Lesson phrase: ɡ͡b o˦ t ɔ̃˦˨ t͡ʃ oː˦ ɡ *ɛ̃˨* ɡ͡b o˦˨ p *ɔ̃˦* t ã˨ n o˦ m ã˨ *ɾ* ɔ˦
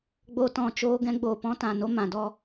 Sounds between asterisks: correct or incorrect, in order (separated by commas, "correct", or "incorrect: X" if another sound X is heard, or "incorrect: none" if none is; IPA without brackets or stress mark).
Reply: incorrect: ɛ̃˦, correct, incorrect: d